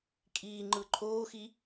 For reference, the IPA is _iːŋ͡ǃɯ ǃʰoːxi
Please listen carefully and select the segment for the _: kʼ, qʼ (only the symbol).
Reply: kʼ